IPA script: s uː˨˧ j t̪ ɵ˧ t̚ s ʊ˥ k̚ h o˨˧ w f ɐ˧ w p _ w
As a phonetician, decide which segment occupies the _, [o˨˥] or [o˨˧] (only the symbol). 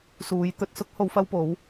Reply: o˨˧